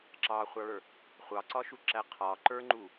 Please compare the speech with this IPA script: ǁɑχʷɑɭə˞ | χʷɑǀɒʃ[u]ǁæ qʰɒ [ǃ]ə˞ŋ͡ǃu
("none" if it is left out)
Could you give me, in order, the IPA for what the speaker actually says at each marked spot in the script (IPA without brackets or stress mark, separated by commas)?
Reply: u, ǃ